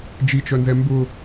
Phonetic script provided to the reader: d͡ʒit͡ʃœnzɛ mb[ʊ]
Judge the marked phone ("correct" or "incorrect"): correct